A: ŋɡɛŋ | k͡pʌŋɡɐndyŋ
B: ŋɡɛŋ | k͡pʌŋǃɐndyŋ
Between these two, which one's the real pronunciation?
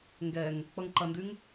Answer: B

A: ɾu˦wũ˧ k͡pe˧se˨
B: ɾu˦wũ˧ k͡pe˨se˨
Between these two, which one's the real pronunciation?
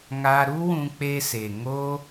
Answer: A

